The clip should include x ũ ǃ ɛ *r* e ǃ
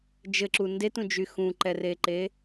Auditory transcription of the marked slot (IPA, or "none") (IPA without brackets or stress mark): r